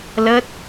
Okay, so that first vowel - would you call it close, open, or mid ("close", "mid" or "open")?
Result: mid